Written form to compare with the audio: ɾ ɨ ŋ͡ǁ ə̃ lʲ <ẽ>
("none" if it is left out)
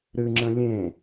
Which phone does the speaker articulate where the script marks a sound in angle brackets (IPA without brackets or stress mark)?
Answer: ẽ